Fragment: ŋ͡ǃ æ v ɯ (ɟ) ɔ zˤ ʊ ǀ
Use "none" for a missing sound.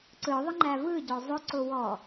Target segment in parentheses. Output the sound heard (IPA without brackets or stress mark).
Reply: ɟ